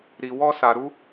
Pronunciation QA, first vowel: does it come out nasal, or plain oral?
oral